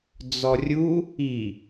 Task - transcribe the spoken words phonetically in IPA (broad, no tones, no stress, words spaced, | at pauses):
d͡zɔrʲu | i